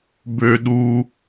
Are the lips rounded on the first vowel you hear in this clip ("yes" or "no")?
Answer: yes